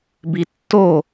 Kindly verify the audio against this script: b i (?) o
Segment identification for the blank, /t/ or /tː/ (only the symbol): tː